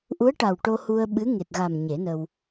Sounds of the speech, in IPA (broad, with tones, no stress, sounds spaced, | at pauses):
ʔ u˧˥ ə̯ ʈ a˨˩ w ʈ o˧ h u˧ ə̯ ɓ ɨ˧˥ ŋ e˨˩ t̚ ɣ a˨˩ m ɲ e˨˩˦ n ə˧ w